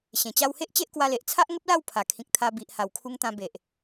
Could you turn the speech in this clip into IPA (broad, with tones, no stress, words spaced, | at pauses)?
ɕẽ˨˩ t͡ɕa˧whe˦ʔ t͡ɕe˦ʔkwa˧le˨ʔ t͡sʰa˦ʔŋə˦p̚la˥˧w pʰa˨˩kʰĩ˨k̚ t̪ʰa˧ bi˨ʔha˨˩wkʰu˧ŋt̪ã˧ be˨ʔ